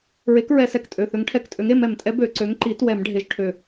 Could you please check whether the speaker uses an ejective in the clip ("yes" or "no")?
yes